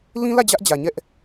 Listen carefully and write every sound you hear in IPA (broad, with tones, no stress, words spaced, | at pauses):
lĩ˦lä˦˨ d͡ʑä˦ʔd͡ʑä˨ɲɛ˦ʔ